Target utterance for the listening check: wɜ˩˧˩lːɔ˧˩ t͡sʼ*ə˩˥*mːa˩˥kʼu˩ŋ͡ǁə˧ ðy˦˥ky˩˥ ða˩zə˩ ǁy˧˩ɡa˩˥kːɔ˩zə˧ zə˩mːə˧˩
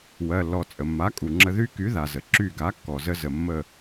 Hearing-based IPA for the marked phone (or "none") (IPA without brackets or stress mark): ə˩